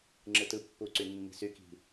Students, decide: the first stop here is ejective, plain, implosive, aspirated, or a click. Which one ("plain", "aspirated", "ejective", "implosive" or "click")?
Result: click